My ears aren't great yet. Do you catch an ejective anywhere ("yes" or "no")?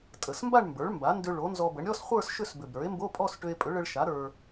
yes